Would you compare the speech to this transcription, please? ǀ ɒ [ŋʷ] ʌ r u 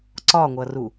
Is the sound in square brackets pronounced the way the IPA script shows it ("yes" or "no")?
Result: yes